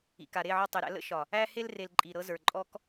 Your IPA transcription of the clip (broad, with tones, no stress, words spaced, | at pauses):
ḭ˨ka˨ ɾe˦˨ʕɒ˧tˤe˨ɾæ̰˧ lə̰˦ʃɒ˨ | æ˧he˧lre˨l ǃʼi˨ɾɤ˧zə˞˨ ǃʼɔ˦k